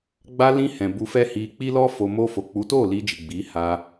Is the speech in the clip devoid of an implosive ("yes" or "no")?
yes